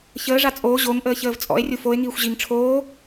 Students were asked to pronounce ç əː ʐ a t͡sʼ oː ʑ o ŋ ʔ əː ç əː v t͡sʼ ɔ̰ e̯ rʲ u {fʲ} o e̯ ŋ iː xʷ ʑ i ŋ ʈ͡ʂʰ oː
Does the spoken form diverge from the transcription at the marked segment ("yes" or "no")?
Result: yes